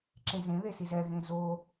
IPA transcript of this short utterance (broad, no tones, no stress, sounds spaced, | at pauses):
ǁ ẽ z ẽ ð e s i z ɛ ɣ ẽ z o